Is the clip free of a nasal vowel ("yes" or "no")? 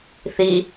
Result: yes